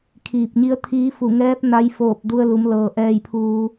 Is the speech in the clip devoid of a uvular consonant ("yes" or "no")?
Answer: yes